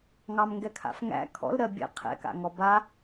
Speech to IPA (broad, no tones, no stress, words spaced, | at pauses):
ŋɑmŋɡɛkʰa̰fŋæ̰ kʰɔ̰lɾɜ bʲɛ̰ qʰɛ̰ka̰ŋɔ ba